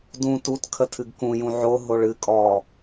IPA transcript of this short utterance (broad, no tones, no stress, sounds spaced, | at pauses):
d ũ t u t kʰ ə tʰ ɨ ɡ k ũ j ũ ʕ o ɦ o ɭ ɨ kʼ ɔ